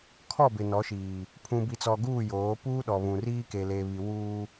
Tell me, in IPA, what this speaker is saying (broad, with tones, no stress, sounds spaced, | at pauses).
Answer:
kʰ ɔ˦˨ b ɪ˨ n ɔ˨˦ ʃ iː˨ | pʰ ũ˨ b i˨ t͡s ɔ˨ ɡ uː˦˨ j oː˨˦ p uː˦ ɗ ɔ˨ β ũ˨ r iː˦ k e˨ l e˨ β i˨ w uː˦